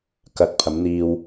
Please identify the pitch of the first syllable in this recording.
rising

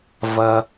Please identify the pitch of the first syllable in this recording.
low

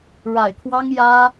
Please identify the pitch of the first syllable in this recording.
low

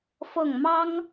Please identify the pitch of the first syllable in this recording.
falling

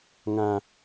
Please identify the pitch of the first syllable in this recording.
high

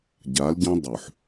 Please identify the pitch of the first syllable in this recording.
rising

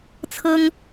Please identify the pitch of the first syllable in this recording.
high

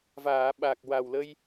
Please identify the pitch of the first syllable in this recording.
low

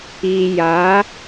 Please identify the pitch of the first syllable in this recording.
low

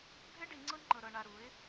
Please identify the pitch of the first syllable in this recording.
high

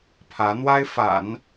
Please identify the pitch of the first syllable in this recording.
rising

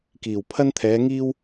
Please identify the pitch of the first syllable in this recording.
low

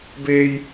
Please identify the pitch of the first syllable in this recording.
high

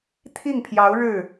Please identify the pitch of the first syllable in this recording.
falling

